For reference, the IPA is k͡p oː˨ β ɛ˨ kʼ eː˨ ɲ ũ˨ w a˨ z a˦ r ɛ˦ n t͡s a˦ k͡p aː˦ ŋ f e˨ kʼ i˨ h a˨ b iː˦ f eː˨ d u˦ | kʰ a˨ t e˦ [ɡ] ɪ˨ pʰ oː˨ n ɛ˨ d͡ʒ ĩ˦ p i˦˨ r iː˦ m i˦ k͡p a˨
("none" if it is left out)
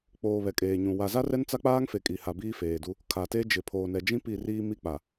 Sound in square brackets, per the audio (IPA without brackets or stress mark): d͡ʒ